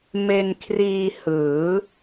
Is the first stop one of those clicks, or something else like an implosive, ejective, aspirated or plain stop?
aspirated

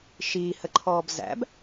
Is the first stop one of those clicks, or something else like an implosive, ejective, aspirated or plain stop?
click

